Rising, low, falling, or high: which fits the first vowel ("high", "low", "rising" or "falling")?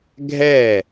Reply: falling